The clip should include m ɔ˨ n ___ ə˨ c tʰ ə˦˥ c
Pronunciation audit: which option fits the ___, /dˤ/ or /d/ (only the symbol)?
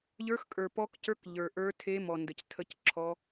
d